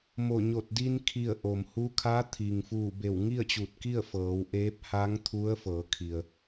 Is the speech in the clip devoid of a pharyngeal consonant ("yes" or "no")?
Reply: yes